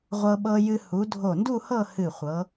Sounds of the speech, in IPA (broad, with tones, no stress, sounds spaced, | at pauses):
ʁʷ ɤ˧ ɓ ɤ˧ j ɨ˧ h u˩˧ dʱ o˧˩ n d u˥˧ h ɤ˥˧ h ɨ˧˩ χʷ ɤ˩˧